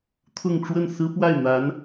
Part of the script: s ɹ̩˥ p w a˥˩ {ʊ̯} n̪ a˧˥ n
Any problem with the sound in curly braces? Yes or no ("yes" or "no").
yes